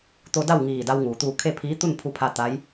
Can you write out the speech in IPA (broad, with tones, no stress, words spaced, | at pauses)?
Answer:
t̪o˧da˥˨w ŋiː˧˩da˧w ŋuː˩ t̪uː˧˩ kʰe˥˨pʰiː˧˥ t̪u˥˨npʰu˧pʰa˧ t̪a˧˥j